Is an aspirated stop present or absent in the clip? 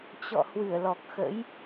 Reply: absent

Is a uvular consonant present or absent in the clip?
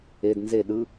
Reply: absent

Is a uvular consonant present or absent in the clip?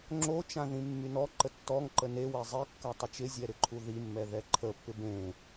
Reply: absent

